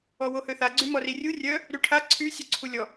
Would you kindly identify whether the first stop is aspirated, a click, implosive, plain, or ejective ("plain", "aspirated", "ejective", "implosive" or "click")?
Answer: click